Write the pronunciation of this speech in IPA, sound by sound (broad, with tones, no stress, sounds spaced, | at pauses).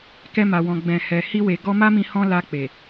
k ɛ˧ m a˨ w ɔ̃˨ ɡ͡b ɛ̃˨ h ɛ˨ h i˧ w e˨ ɡ ɔ˧ m a˦ m ĩ˧ h ɔ̃˧ l a˧ k͡p e˨